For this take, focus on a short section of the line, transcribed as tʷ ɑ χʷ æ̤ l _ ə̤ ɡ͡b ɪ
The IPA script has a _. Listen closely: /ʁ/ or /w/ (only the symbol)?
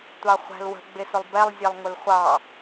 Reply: w